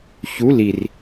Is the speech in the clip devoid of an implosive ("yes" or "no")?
yes